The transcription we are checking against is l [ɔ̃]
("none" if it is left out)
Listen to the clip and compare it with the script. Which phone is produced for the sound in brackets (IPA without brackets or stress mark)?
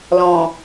ɔ̃